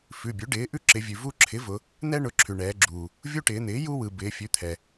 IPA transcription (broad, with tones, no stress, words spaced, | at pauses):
fʉ˩˧˩bʲʉ˩˥ ɖɪː˩˥ ʔʉ˦ǁɪ˩˧vʲʉ˩ vu˦ ǁʰɪ˩˥vʊ˩˧ | n̪ɛ˦ɳʊ˩˧˩ ǁʰʉ˩ɳɛː˩˧ɡ͡ǁuː˩ | vʲu˦ʈɪː˩˧n̪ɪː˩˥ ju˦wɯ˩ bɪː˩˧ fʲʉ˩˥t̪ʰɛ˩